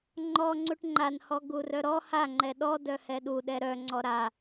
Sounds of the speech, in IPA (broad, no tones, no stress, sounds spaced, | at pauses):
ŋ͡ǃ ɔ ŋ͡ǀ u ʈ ŋ͡ǃ a n h ɔ ɡ u r œ ɾ ɔ h a ŋ͡ǃ ɛ ɗ ɔ d œ h ɛ ɗ u ɗ ɛ ɾ œ ŋ͡ǀ ɔ ɾ a